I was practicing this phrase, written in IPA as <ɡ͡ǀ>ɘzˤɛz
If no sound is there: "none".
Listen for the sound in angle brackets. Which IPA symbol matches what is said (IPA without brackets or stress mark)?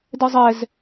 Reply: d